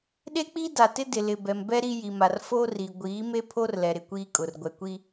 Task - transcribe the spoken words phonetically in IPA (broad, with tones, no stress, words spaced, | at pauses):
ɗe˦k͡pi˦da˨tɪ˦ dɪ˨lɪ˨ bɛ˨m bɛ˦ ɾi˦ji˨ma˨r fo˦ri˨ ɡʷiː˨˦me˦pʰo˦r lɛ˨ɾɪ˨kʷiː˦ kʼʊ˨r ɡʷɛ˨kʷi˦